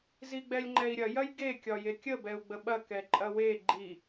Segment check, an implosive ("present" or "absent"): present